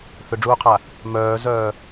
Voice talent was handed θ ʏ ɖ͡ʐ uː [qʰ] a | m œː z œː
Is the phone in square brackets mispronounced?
no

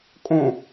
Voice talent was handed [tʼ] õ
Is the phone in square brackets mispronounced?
yes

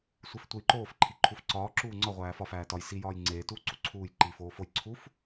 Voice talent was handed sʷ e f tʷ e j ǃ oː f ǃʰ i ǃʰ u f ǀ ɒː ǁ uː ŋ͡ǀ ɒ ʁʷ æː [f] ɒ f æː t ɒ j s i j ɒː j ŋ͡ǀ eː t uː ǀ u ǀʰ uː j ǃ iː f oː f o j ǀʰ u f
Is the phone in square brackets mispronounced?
no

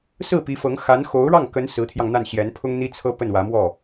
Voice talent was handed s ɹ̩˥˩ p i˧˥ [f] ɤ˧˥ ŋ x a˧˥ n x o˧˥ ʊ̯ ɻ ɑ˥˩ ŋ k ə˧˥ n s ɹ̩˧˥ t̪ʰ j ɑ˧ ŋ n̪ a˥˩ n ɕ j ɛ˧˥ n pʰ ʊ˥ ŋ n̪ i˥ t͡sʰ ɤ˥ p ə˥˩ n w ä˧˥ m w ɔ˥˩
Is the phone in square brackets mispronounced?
no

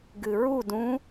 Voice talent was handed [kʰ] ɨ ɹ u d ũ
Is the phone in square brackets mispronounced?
yes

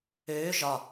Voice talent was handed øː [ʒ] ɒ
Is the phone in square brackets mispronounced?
no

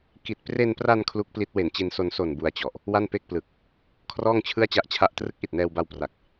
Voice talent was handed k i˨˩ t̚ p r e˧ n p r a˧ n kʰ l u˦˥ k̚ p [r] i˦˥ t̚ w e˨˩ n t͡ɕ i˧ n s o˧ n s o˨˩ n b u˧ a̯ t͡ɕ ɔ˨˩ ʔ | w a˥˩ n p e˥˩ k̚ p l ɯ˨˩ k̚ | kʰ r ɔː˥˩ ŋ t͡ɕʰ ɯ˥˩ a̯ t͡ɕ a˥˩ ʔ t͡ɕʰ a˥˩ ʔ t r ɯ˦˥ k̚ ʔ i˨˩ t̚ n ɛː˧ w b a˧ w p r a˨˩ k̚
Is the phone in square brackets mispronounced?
yes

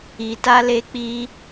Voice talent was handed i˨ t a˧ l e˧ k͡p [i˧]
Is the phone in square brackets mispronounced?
no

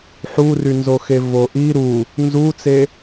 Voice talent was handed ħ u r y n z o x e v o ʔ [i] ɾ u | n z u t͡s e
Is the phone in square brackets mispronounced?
no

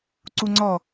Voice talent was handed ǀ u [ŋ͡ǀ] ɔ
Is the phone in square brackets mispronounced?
no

